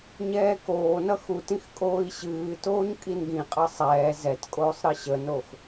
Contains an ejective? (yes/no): yes